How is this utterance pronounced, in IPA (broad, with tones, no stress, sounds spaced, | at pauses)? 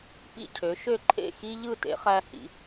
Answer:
p ḭ˦˨ cʰ ø˨˦ ʃ ø˦˨ ǃʰ ḛ˦˨ x i˦ ʎ ɯ˦˨ t ḛ˨˦ χ æ˦ h ḭ˨˦